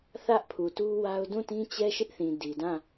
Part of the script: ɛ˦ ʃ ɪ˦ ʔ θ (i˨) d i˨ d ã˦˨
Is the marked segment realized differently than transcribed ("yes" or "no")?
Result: yes